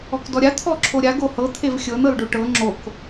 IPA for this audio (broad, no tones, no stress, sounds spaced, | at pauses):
ɔ k d ɔ ɾʲ a t̪ʰ ɔ ǁʰ o ɾʲ a ɡ o h ɤ t̪ʰ e v xʲ ɤ n ɤ l ɖ o ʈ ɤ ŋ͡ǁ o k